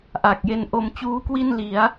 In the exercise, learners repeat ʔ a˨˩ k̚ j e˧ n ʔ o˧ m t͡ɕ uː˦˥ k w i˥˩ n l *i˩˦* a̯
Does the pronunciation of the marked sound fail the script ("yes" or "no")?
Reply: no